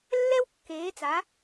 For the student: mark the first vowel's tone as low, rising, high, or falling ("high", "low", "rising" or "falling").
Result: high